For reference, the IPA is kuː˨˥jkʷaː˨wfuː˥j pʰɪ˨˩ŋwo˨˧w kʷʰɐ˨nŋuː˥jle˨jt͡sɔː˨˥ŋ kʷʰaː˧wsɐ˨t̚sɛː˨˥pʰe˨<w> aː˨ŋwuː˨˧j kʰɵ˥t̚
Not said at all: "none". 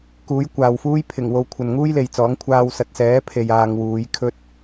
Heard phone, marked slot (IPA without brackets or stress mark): j